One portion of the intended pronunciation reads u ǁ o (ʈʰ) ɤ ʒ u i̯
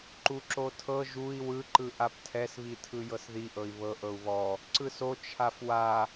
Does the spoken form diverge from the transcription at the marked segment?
yes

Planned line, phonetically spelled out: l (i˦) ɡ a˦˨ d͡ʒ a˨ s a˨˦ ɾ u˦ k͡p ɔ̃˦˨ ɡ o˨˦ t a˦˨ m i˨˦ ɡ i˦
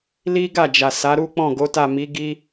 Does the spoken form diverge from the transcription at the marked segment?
no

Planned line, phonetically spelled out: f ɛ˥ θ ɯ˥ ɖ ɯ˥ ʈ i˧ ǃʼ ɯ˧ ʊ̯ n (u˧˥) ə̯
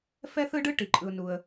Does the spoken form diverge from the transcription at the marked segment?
yes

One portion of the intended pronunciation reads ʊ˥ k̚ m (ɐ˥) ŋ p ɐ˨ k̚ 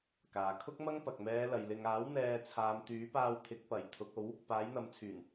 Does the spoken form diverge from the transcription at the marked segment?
no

